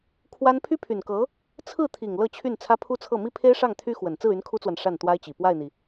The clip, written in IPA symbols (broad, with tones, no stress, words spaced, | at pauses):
kʰwa˥n pʰy˥pʰy˨˩nkɤ˧˥ | t͡sʰɹ̩˥˩t̪ʰi˨˩ŋ lɤ˥˧t͡ɕʰy˥˩n t͡sʰä˥pʰu˥t͡sʰɤ˥˩ mi˥pʰe˥ɪ̯ ʂɑ˥˩ŋt̪ʰy˥xwə˨˩n t͡sɹ̩˥˩y˧˥n kʰu˥t͡swa˨n ʂa˥˩nt̪wa˥ɪ̯t͡ɕi˨˩ pwa˥˩ɪ̯n̪i˩